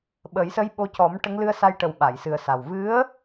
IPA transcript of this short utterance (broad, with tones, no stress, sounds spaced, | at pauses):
ɓ ə˨˩˦ j s ə˧˥ j ɓ o˧ c ɔ˨˩˦ m ʈ ə˧˥ ŋ l ɨ˧ ə̯ s a˧ j ʈ ə˨˩ w ɓ a˨˩˨ j s ɨ˨˩ ə̯ s a˨˩ w v ɨ˧˥ ə̯